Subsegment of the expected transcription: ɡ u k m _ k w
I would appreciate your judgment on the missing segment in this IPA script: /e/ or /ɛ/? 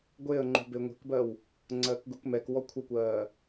ɛ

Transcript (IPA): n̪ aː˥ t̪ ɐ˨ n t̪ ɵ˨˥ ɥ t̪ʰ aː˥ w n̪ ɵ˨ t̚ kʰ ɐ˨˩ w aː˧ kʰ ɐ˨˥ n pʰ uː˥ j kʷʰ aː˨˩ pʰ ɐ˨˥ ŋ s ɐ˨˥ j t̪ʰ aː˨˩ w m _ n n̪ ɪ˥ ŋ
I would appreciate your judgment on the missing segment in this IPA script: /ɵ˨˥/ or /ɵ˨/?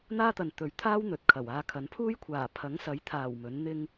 ɵ˨˥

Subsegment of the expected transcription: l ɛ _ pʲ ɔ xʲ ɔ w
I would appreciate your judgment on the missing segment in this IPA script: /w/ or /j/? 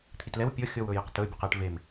w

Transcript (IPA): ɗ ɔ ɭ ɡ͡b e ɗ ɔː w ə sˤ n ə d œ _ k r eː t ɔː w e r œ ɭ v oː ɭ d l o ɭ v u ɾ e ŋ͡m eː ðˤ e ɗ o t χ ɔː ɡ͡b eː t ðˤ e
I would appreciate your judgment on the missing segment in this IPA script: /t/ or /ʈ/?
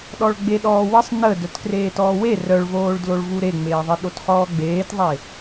t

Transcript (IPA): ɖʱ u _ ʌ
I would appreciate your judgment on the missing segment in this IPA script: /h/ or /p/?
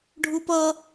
p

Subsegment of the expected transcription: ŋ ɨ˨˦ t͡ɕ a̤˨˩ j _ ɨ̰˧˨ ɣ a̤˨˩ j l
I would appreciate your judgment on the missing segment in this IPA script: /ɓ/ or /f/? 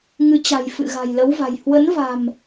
f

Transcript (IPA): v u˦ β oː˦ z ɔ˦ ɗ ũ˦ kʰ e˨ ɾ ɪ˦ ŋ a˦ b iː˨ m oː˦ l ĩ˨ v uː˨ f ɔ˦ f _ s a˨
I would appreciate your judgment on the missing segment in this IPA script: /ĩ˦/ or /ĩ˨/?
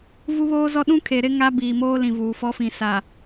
ĩ˨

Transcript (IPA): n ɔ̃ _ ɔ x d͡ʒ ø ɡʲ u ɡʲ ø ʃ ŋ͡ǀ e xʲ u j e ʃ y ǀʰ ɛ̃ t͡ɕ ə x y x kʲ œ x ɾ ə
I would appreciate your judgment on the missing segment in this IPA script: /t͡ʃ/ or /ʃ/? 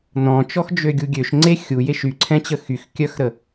t͡ʃ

